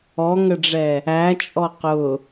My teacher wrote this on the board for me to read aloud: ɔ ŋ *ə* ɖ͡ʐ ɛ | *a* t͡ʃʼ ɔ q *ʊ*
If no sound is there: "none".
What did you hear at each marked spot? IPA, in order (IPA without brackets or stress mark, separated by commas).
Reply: ə, æ, ʊ